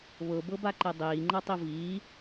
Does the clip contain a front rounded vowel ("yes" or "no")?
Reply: no